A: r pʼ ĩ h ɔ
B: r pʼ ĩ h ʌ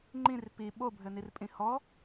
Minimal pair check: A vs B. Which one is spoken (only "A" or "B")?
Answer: A